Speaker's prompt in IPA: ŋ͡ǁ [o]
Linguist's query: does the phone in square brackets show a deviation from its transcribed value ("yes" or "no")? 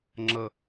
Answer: yes